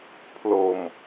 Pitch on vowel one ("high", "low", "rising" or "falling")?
low